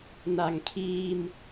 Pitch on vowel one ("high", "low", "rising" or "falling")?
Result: low